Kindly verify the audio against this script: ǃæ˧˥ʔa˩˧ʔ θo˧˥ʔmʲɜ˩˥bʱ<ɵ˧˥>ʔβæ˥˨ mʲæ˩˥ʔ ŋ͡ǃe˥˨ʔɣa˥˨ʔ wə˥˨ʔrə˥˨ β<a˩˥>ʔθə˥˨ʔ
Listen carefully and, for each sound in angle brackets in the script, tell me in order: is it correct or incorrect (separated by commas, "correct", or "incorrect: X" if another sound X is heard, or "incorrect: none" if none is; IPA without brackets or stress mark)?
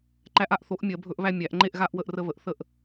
correct, incorrect: ə˩˥